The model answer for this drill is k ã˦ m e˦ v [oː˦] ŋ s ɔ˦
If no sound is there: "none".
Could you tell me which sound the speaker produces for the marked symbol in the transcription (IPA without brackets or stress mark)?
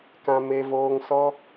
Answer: oː˦